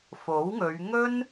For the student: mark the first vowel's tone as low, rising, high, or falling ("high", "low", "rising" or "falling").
rising